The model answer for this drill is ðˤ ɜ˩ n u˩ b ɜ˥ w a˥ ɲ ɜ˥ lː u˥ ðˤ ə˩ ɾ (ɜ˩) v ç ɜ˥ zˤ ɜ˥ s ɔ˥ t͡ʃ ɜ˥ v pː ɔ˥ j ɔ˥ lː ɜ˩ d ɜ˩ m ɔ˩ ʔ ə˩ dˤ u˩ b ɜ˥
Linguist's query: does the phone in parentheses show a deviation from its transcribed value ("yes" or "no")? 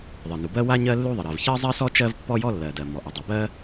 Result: no